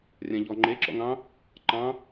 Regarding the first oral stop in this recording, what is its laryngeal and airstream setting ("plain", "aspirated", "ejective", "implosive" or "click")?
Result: click